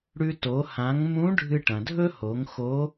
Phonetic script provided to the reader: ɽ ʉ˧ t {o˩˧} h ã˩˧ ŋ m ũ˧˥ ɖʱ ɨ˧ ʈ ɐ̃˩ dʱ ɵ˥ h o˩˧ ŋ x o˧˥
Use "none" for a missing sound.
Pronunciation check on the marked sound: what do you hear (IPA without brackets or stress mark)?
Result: o˩˧